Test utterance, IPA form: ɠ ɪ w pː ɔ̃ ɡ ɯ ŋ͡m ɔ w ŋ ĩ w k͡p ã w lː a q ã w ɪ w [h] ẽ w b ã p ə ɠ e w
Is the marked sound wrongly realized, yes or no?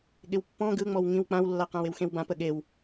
yes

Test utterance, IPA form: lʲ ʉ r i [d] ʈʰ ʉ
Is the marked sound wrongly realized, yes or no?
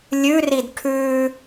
no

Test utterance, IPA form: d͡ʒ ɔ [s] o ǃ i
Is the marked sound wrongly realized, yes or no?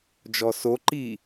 no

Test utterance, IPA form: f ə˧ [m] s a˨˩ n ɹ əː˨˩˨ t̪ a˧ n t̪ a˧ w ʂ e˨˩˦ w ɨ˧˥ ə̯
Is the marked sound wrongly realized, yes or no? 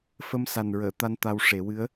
no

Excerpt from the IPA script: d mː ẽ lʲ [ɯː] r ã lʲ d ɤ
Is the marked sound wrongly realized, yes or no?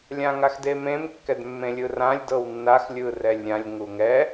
yes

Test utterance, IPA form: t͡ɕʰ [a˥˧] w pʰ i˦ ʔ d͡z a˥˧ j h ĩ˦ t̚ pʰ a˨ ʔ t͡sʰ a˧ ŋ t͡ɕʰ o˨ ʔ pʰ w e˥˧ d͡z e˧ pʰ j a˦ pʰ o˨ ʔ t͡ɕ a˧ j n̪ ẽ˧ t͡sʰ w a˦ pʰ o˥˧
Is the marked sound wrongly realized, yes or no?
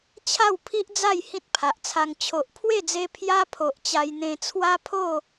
no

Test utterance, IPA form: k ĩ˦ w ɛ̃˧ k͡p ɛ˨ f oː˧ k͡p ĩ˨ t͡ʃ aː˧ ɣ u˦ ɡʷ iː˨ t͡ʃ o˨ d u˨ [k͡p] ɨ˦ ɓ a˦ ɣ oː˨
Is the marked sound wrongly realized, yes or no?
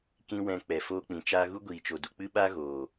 no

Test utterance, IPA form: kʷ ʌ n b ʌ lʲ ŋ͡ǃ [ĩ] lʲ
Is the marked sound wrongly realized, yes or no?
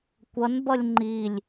yes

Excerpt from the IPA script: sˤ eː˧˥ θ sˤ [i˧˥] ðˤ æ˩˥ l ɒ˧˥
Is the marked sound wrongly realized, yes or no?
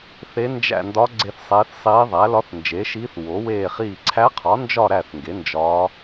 yes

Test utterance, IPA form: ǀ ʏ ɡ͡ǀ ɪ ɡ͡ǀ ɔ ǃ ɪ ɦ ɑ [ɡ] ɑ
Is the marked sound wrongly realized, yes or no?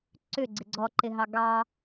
no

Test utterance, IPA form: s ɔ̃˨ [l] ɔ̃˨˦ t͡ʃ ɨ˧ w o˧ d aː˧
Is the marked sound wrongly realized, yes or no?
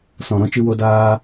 yes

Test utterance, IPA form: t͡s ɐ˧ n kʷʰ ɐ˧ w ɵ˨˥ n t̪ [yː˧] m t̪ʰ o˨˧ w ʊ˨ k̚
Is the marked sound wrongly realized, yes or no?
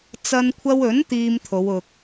yes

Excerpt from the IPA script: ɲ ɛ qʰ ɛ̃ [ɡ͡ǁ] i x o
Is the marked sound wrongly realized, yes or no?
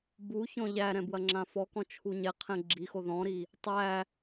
no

